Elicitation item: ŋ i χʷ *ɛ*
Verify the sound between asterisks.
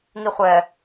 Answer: correct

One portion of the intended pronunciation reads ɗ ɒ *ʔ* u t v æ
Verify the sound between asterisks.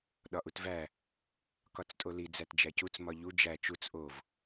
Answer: correct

